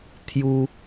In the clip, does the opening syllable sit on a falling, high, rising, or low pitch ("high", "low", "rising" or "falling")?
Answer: high